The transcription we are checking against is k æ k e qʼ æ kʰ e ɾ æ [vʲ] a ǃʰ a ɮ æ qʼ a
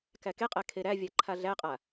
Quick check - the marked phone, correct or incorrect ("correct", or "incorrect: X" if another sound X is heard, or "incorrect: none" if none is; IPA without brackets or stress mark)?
correct